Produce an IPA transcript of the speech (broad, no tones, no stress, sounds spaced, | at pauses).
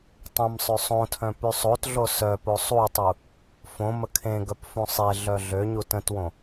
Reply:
tˤ ə̃ m sˤ ø sˤ õ tʰ œ̃ p y sˤ o t ɮ o s œ p o sˤ u tˤ u | f õ m ə kʰ ẽ ɡ œ p f ũ sˤ e ɮ œ ɮ ø ɲ u t ə̃ t w õ